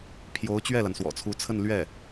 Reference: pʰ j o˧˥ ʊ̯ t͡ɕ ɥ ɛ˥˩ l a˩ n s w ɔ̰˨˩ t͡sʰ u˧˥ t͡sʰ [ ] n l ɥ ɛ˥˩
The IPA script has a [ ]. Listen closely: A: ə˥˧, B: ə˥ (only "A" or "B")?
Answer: A